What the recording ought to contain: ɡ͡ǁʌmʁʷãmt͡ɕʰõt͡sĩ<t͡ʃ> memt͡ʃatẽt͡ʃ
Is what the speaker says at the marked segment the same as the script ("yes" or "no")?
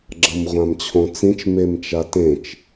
yes